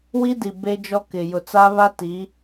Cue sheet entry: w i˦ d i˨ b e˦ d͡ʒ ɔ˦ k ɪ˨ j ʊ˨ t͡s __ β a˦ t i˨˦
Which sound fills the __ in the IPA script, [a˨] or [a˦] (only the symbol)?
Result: a˦